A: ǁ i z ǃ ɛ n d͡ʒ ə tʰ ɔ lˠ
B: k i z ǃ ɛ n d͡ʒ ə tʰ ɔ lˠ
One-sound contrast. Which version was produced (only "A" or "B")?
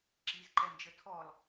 A